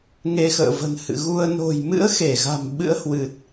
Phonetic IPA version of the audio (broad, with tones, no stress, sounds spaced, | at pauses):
ŋ e˧ x ə̰ː˧˨ v ə̤˨˩ n h ɨ̰˧˨ ɣ u˧ ə̯ n o̤˨˩ j m ɨ̰˧˥ ə̯ x e˧˩ ɣ a̤˨˩ m ɓ ɨ̰˧˥ ə̯ h w ɨ˨˩ t̚